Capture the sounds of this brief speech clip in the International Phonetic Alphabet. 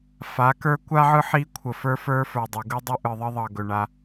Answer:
f a˨˦ k ə˞˦ kʷ a˦ ʕ ɯ˦ ħ i˦ kʷʰ ə˨ f ə˞˦ f ə˞˦ f ə˞˨ dˤ ɵ˨ ɡ ɯ˦ dˤ ɵ˦ ʔ ɯ˨ ðˤ ə˦ ðˤ ʌ˨ ɡ ɵ˨ ɳ a˦

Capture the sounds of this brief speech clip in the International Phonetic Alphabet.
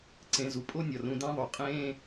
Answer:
ǀ ẽ˨ z u˩ pʼ o˥ nʲ ɒ˩ r ũ˨ d æ̃˥ ðˤ o˨ qʼ ẽ˦

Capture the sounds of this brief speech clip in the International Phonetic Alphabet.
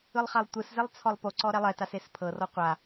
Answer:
ɯ lˠ χ a lˠ tʷ ɯ s z e lˠ t͡sʰ ɔ lˠ p o ǀ ɔ ɾ ɛ lˠ ɛ t a s e s pʰ ɤ r ɔ qʷ a

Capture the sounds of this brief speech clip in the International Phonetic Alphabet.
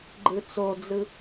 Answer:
ɡ͡ǃ ɯ t͡s o d͡z ɯ

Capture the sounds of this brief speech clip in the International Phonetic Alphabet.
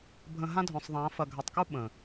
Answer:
bʱ ə̃˨ ɦ ã˦ dʱ œ̃˨ sˤ ðˤ ãː˨˦ f ɐ˨ ɡʱ a˨ tˤ k u˦ ɓ ə̃˨

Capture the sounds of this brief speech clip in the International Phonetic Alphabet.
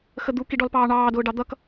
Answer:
x ə d̪ u k i ɖ ɔ l p ɑː ɳ ɑː d ʊː ɖ ɑ d̪ ʌ k

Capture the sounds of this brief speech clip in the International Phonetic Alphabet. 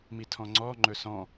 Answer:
m i tʰ ɔ̃ ŋ͡ǀ ɔ ŋ͡ǃ ɵ s ɔ̃

